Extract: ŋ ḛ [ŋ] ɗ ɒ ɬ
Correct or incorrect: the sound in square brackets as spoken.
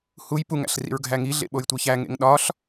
correct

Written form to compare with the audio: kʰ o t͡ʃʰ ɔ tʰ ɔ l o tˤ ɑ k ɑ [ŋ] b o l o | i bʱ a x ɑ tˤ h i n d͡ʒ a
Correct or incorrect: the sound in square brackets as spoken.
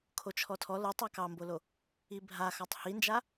incorrect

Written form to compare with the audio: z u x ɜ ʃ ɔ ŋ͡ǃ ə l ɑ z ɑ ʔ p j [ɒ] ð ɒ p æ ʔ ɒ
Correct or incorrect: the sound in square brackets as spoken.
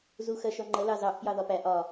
incorrect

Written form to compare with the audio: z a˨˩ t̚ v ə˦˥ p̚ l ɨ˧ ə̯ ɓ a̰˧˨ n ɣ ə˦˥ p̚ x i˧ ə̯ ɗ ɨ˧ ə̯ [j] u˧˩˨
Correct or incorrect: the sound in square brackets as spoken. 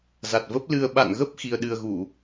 incorrect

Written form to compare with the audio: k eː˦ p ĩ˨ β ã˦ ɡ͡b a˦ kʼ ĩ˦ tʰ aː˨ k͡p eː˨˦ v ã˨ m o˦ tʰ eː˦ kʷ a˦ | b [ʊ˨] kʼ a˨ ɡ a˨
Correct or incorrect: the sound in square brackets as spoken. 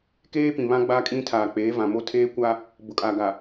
correct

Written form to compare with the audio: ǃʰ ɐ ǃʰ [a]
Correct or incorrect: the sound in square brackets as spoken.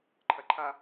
correct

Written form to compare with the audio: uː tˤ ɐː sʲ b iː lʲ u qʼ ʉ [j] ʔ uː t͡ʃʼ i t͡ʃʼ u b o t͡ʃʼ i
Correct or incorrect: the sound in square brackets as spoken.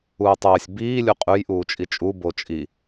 correct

